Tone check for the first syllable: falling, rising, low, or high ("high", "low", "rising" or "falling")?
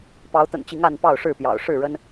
rising